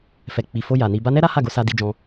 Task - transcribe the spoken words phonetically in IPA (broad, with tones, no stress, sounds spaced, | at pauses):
f ɛ˨ k͡p i˨ f o˧ j a˨ n i˧ b a˧ n ɛ˦ ɾ a˦ h a˦˨ ɡ o˨˦ s a˧ d i˦ d͡ʒ ɔ̃˦